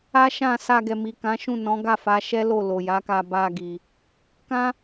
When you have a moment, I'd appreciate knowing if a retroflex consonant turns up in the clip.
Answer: no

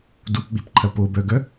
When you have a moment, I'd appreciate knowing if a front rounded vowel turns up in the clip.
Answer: yes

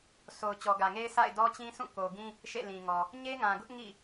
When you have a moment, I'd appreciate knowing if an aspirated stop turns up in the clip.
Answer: no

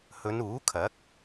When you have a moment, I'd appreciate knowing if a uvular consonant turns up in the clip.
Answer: no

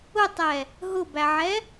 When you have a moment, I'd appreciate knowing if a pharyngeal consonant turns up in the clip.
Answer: yes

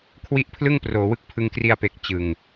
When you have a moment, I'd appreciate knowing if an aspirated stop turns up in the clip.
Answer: yes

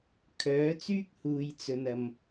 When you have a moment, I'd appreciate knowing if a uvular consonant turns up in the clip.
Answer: no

